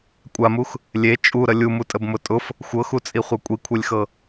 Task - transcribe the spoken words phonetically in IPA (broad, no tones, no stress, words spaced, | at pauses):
kʷʼamux | lʲe t͡ʃʼuɾə lʲumutʼəbmʊ tʼʊf | xʷɤxut͡sʼiχʷɤ kʷʼikʷʰelʲxɤ